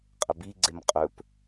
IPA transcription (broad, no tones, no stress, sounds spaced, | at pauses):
qʼ ə b i ɡ͡ǀ e m qʼ ɵ p